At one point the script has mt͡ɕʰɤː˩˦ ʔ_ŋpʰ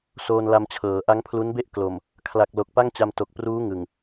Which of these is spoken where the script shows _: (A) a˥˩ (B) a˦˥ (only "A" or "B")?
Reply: B